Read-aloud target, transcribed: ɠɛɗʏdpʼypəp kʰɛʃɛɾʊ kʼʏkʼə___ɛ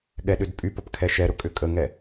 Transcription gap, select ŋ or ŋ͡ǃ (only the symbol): ŋ